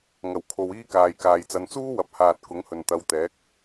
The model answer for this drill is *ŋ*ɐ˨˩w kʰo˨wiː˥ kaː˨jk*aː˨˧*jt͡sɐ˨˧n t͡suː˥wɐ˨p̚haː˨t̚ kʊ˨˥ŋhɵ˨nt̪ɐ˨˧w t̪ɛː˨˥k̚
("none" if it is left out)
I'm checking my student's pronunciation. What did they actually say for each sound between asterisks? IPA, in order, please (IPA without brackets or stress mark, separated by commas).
ŋ, aː˨